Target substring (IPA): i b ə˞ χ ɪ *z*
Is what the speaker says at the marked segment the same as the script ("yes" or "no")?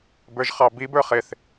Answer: no